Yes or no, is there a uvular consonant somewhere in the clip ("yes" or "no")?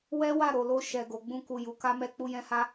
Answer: no